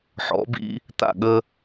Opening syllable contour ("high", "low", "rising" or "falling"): rising